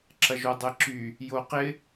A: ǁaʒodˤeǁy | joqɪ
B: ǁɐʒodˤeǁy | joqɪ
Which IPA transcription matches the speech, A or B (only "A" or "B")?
B